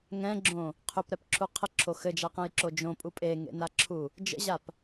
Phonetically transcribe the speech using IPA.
ŋ ɛ̃ ɡ͡ǁ õ | qʰ ʏ p ɾ ɛ p ǁʰ u qʰ ə ǁʰ o x ɘ d͡ʒ a q ɛ̃ j ǁ o d͡ʒ õ pʼ u pʼ e ŋ ḛ n a ǁʰ u | d͡ʒ ə̰ ʑ a p

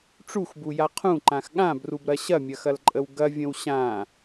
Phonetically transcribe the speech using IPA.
ʈ͡ʂ u x b u j a qʰ ũ ǃ ã x ɠ ã b r u b ɾ ɐ ɕ ɐ mʲ ɐ x ɐ l ǃʼ ə w ɡ ɐ vʲ ə̃ w ɕ ã

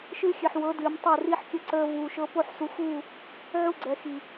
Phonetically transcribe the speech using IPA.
ʃ ɨː˦ xʲ ɨ˨ ħ w ɤ˨˦ d ɨː˨ m tˤ o˦˨ r i˦ ħ kʲ ə˦ ǀ əː˦ v uː˨ ʃ ɤ˦ p o˦˨ ħ s u˨ x uː˦˨ | ʕ u˦ ɡ͡ǀ ɛ˨ x i˨

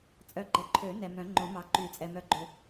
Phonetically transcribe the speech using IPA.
t͡sʼ œ˨ ɡ͡ǃ ɛ˨ ǃʰ ø˨˩˦ n ɛ˨ m œ̃˨˩˦ ŋ͡ǃ õ˨˩˦ m ɑ˨˩˦ ǃ y˨˩˦ t͡sʼ ɛ˨ m œ˨ ɡ͡ǃ ø˨

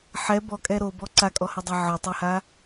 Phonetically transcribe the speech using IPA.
ħ ɛ b ɔ kʼ ɛ ɾ o b ɔ ǀ a kʼ ɔ h ə dˤ a ʕ ɒ tˤ ɛ h a

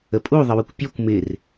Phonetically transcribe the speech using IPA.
ə pʼ u ðˤ ə w ə kʷ pʲ ɔ kʷ m ɪ r

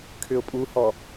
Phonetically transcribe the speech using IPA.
kʰ ʏ ʊ̯ pʼ u h ɔ

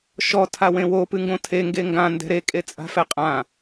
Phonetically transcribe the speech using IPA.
ʃ ɔ tʰ a w ẽ w o p ɨ ŋ ɡ õ tʰ e ŋ ɡ e ŋ ɡ ã n d ɛ̤ ɾ e kʼ e t͡sʼ a̤ f ɛ qʼ ã

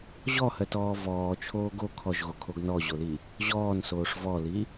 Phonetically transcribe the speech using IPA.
ʑ ɔ h ɜ t ɔː v ɔː t͡ʃʰ oː ɡ o kʰ ɔ ʒ ɣ o kʰ o ɡ n ɔ ʑ o l i | ʑ ɔː n s oː ʂ v ɔ l i

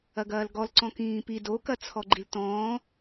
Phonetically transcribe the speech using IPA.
ɐ ɡ ɐː l ɡ ɔ l ǀ ɔ̃ k ĩː p i d o k ɐ t͡sʰ ɔ ɡ͡ǃ i l t ɔ̃ː

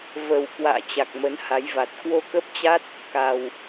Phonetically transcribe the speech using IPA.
v ə˨˩ w k w a̰ː˧˨ t͡ɕ a˨˩ k̚ m ə˨˦ n h a˨˦ j v a˨˩ t̚ k w o˧ k ə˦˥ p̚ t͡ɕ a˦˥ t̚ | k a˨˩ w

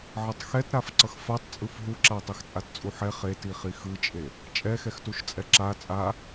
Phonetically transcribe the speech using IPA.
ʕ ʌ tˤ x ɛ t ɾ a f ǀ ʌ x f a tˤ t͡sʼ ɯ f ɦ u ǁ a tˤ e x t͡sʼ a t t͡sʼ u ħ ɛ χ e t i χ i x ɯ t͡ʃʼ e | t͡ʃʼ ɛ x ɛ x t u ʃ t͡sʼ ɛ ǁ a t͡sʼ a

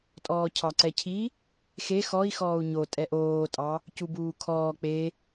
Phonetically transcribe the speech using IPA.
tʼ ɔː cʰ ɑ ǀ ɛ cʰ i | x e x ɔ i̯ x ɔː u̯ ɲ o tʼ ɛ ʔ oː tʼ ɑ | c u b uː kʰ ɔː k͡p e

